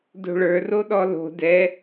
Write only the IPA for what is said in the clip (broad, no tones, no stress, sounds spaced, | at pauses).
d o̤ ɭ ə˞ r o ɗ ɔ l o̤ d ɛ